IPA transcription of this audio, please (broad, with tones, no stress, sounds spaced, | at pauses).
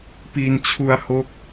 p i˧ n t͡ɕʰ u˧ a̯ h o˦˥ k̚